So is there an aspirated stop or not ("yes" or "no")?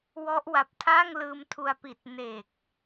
yes